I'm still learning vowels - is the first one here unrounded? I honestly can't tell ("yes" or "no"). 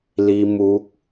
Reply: yes